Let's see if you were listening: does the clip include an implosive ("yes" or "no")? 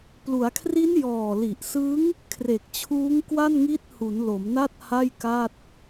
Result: no